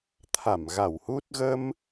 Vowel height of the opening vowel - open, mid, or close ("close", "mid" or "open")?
open